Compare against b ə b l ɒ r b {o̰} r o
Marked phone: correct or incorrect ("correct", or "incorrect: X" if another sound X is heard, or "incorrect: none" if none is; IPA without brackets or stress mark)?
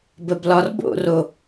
correct